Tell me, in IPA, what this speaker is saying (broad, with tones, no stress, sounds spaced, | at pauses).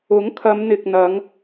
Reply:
ʊ˨˥ ŋ kʰ ɐ˨˧ m n̪ ɪ˨ k̚ n̪ ɐ˨˧ ŋ